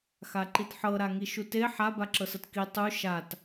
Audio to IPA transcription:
x a ǃ i t ħ ɤ ɾ a ŋ i ʃ u t e ħ a b a ǁ ɤ s ɤ t k i tˤ u ʃ a t

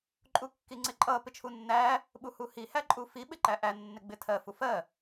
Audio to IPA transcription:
ǃʼ u kː i ŋ͡ǀ ɪ ǃʼ ʌ p ɪ t͡ʃʰ u nː æ | ɓ u h u h i h æ ǃʼ u f i ɓ ɪ ǃ æ ʔ æ nː ɪ ɡ͡b ɪ tʰ ɜ f u f ɜ

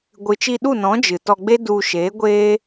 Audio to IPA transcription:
ɡʷ ɨ˨ t͡ʃ i˧ ɗ u˦˨ n ɔ̃˨˦ d͡ʒ ɨ˨ t ɔ˧ ɡ͡b e˦ d u˧ ʃ eː˨˦ ɡʷ eː˦

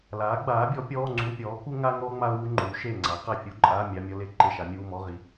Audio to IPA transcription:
l aː˩˥ ɡ͡b aː˩˥ bʲ ɔ˩˥ pʲ ɔː˧˥˧ ŋ͡ǀ u˧˥˧ pʲ ɔː˩˥ k u˥ ŋ a˥ ŋ ɔː˥ ŋ͡m a˥ ʊ̯ w u˥ ŋ͡ǃ uː˩˥ ʃ eː˥˨ ŋ͡ǀ a˩˥ q a˥˨ fʲ u˧˥˧ ǃʼ aː˧˥˧ mʲ a˧˥˧ mʲ ɔ˥ l e˥˨ ǃ e˥˨ ʃ a˩˥ mʲ uː˧˥˧ m ɔ˧˥˧ ʁ i˩˥

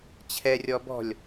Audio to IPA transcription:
t͡ɕʰ ɛ rʲ ɔ b ɔ̤ lʲ

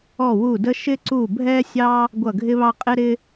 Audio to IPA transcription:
ɔ˧˩ w u˧˩ d ə˦ ʃ ɪ˦ ǀ u˧˩ bʱ ɛ˦ sʲ ɑ˦ | ɡʷ ʌ˧˩ ɡʱ ɪ˦ β ɑ˦ qʼ ɪ˦ ɾ ɪ˦

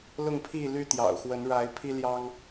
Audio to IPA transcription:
l ʊ˥˨ ŋ pʰ i˥˨ l y˥˨ t̪ j ɑ̰˨˩ ʊ̯ x w ə˨˦ n ɻ a˨˦ ɪ̯ pʰ i˦ l j ɑ˦ ŋ

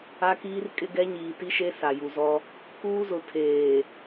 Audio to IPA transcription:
a˦ k iː˦ r kʼ ɪ˦ ɡ ɛ˦ ɲ iː˨ t i˦ ʃ e˦ s a˨ j u˨ z ɔ˦ | k uː˦ z ʊ˨ tʰ eː˨

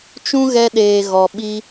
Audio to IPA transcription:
t͡ʃ ũ˦ ɣ ɛ˧ ɗ eː˨ ɣ ɔ˨ ɓ i˧

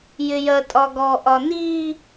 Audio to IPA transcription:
j ɪ j ɜ tʼ ɒ ɡ ɔ ʔ ɒ n i

